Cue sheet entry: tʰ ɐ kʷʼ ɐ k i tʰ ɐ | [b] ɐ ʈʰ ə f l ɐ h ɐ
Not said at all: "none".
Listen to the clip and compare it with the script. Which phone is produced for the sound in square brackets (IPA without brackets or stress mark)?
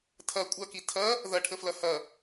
ð